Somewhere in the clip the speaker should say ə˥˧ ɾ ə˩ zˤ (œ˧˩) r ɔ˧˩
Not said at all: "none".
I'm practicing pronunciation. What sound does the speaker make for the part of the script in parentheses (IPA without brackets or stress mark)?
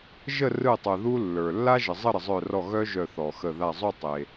œ˧˩